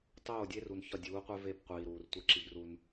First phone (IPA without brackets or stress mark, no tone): tˤ